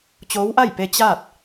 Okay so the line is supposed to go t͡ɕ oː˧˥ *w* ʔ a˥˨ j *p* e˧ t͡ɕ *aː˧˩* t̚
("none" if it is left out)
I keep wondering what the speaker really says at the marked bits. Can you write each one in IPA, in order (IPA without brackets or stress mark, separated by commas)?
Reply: w, p, aː˥˨